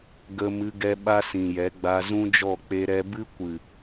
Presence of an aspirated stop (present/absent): absent